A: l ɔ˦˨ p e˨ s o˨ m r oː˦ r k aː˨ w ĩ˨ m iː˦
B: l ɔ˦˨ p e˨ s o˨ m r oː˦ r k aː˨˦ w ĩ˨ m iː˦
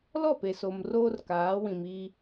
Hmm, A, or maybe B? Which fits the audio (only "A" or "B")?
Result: B